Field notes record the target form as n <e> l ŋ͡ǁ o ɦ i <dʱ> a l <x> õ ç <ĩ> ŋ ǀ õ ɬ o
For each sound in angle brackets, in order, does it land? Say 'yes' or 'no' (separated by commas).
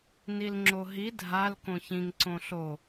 no, yes, no, yes